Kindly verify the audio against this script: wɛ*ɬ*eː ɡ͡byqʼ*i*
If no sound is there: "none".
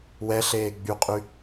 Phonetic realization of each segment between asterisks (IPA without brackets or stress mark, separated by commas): ɬ, y